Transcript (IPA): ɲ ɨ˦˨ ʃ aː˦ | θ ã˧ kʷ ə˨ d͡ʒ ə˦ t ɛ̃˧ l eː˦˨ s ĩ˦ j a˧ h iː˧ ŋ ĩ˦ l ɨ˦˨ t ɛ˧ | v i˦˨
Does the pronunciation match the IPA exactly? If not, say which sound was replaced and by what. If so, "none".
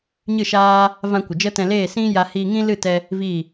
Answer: θ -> v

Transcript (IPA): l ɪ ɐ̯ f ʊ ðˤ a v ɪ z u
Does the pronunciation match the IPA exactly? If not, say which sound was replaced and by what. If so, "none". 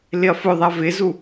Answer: none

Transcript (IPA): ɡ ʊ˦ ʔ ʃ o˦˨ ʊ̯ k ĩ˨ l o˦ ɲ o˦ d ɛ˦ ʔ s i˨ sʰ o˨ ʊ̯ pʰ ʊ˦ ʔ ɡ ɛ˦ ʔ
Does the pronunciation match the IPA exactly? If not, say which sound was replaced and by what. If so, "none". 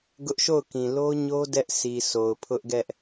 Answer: none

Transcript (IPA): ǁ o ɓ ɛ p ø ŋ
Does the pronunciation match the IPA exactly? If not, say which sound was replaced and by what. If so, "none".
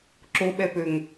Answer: none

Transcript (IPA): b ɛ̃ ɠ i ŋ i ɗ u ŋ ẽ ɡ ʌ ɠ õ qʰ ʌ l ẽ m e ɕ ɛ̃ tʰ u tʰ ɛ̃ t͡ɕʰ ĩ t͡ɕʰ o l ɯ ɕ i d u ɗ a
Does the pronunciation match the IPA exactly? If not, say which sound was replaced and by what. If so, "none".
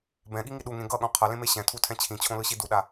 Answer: o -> õ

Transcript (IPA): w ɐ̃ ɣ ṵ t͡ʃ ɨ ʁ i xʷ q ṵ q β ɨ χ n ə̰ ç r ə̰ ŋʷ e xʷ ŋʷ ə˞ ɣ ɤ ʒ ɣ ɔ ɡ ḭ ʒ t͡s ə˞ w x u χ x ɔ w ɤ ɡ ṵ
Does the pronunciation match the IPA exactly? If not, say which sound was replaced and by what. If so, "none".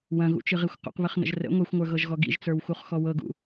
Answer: ç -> ʒ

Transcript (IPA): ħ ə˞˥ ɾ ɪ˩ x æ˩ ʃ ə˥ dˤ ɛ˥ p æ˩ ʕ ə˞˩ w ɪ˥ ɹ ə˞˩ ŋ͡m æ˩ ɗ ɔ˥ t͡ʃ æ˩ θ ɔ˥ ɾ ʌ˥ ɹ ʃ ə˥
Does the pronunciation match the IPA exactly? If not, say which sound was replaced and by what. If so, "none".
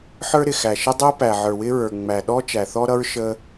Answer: none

